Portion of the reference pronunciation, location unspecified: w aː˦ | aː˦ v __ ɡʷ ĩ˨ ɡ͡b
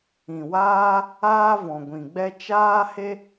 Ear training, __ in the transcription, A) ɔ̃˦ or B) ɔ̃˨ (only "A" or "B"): B